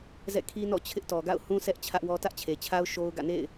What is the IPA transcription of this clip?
z ɛ̰˦˨ kʰ i˦ n ɔ̰˦˨ t͡ɕʰ ɪ˦ ʔ t ɔ˨ ɡ a̰˦˨ ʊ̯ h ũ˦ sʰ ɛ˦ ʔ t͡ɕʰ ä˦ ʔ w ɔ˦ t ä˦ ʔ t͡ɕʰ e˨ t͡ɕʰ a˦ ʊ̯ ʃ o˦ ʊ̯ ɡ ä̰˦˨ n ḛ˦˨ ɪ̯

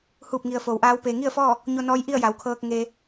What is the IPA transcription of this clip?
h uː˧˩ p̚ ŋ i˩ ə̯ f oː˩˧ w ʔ aː˧˥ w p eː˩ ŋ i˥˨ ə̯ f ɔː˥˨ | ɲ o˧ n ɔː˧˥ j ʔ i˥˨ ə̯ j a˩˧ w kʰ ɤː˧ k̚ ŋ eː˧

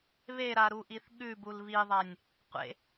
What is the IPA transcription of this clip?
β e ɾ a ɾ u ʔ i θ ɠ ʉ b u l β i ðˤ a nʲ | qʷ ḛ

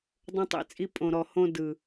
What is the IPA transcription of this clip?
dˤ õ˧ tˤ ḭ˧ t͡sʼ i˧ pʼ õ˨ ɾ ɔ˨ h õ˧ d ɯ˨

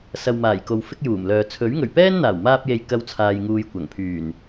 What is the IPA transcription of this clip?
s ɐ˨ w m aː˨˩ j k o˨ w f ɪ˥ k̚ j uː˨˩ m l œː˨ t͡sʰ ɵ˨˥ ɥ ŋ ɵ˨˩ ɥ p ɛː˥ n n̪ aː˨˩ w m aː˧ p̚ j e˨ j k ɐ˥ w t͡sʰ aː˧ j ŋ uː˧ j kʷ ɐ˨˩ ŋ pʰ yː˨˩ n

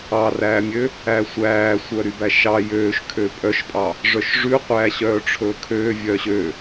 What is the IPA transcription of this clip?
ɑ r æː mʲ ø | æ sʷ æː sʷ œ ɾ y b æ ʃ ɑ j øː ʃ kʰ ø pʼ œ ʃ pʼ ɑ | ʐ œ ʃ ʐ ʉ qʷ æː ɕ œː ʈ͡ʂʰ ɵː kʰ øː vʲ œ ɕ ø

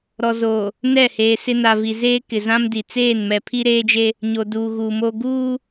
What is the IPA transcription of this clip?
ɾ ɔ˨ z oː˨ | n ɛ˦˨ h eː˨ s ɪ˦ n a˨ v i˨ z eː˦ k ɪ˨ z ã˦ m d i˨ t͡s eː˦˨ n m ɛ˨ pʰ i˦ ɾ eː˦ d͡ʒ e˦ | ɲ o˨ d uː˨ ɣ uː˨ m oː˦ ɡ uː˦

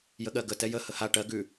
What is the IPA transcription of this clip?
j ə ɠ ɜ ɡ ə t ɛ j ə h ə h a ʈ ɜ ɡ ʉ

